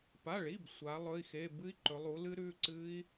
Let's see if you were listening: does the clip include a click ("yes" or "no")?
yes